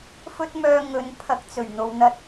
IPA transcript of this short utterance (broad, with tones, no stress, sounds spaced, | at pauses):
f ɵ˥ t̚ m œː˧ ŋ ɵ˨˥ n pʰ ɐ˨˥ k̚ t͡s ɵ˨˩ ɥ n̪ o˨ w n̪ ɐ˧ t̚